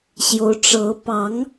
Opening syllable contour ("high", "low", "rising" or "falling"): rising